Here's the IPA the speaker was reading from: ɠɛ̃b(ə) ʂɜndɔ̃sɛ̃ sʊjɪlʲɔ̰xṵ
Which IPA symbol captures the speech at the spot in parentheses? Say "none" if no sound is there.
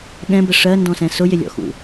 ə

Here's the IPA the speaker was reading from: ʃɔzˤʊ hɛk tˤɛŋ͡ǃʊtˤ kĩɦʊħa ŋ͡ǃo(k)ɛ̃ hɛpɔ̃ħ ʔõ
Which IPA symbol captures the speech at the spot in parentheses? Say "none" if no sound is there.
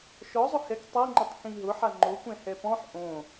kʷ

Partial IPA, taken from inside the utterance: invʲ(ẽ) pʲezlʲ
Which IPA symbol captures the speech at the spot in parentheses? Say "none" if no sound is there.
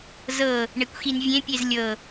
ẽ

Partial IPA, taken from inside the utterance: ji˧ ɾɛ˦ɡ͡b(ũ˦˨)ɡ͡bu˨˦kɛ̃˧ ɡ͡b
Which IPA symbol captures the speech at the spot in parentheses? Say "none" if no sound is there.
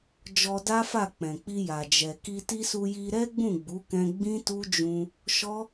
ũ˦˨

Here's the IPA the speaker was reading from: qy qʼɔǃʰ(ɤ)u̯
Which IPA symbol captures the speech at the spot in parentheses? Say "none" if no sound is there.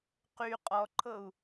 ɤ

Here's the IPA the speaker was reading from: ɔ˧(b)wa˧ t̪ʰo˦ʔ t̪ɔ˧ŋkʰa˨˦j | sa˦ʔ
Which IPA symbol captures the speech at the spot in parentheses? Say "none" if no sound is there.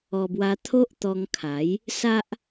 b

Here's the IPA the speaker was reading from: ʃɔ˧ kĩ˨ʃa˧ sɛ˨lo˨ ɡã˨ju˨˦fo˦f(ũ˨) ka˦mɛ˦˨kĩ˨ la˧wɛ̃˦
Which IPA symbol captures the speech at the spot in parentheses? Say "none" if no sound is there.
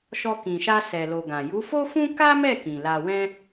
ũ˦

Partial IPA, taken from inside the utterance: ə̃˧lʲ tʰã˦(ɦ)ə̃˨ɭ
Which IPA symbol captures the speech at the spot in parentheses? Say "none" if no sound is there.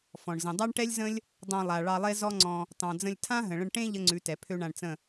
ɦ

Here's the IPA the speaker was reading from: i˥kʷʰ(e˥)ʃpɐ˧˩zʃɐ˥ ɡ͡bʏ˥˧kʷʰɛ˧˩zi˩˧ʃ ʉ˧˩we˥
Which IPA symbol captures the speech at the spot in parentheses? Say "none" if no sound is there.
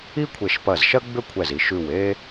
e˧˩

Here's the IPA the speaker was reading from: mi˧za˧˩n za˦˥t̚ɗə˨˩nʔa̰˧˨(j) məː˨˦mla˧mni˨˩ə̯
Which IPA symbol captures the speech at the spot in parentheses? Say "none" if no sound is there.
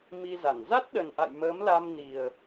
j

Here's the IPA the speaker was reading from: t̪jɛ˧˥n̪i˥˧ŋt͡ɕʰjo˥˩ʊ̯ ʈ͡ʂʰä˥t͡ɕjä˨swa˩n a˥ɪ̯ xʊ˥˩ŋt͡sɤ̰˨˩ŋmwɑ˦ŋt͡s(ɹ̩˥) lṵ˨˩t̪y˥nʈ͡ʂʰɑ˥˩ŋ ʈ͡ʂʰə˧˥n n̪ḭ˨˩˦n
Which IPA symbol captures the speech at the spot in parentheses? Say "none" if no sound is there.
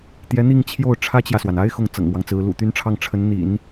ɹ̩˧˥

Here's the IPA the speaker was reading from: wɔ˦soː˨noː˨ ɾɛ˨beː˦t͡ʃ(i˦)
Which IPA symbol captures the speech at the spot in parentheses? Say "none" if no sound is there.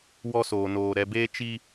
i˦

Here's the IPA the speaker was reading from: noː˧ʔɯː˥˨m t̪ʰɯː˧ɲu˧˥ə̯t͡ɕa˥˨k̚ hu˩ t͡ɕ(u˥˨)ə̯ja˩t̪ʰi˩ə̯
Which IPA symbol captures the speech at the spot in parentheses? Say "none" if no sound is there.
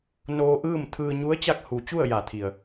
u˥˨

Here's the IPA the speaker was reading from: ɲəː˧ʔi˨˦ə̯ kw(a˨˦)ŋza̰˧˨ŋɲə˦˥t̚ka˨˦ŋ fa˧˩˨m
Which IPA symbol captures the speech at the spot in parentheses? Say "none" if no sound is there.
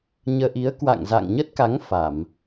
a̰˧˨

